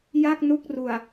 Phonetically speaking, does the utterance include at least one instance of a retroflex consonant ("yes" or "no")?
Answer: no